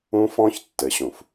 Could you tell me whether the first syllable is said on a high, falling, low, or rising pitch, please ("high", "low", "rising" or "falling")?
high